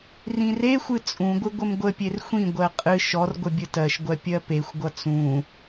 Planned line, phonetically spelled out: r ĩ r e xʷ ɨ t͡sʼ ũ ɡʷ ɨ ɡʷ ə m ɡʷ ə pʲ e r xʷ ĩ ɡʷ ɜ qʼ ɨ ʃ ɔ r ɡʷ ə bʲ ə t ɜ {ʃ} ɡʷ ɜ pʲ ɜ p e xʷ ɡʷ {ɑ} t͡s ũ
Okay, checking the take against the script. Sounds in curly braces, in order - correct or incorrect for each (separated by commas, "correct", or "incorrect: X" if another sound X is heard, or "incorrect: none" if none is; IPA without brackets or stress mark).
correct, incorrect: ʌ